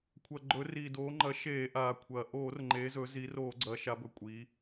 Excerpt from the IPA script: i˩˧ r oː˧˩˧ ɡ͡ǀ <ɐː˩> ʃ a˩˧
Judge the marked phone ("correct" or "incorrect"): incorrect